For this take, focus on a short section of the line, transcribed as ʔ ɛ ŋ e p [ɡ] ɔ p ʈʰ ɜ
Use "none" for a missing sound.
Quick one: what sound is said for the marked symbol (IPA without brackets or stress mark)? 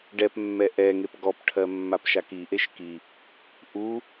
ɡ